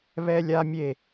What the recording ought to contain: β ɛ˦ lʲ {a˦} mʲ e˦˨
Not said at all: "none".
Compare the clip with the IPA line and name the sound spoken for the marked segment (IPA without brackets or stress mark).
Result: a˦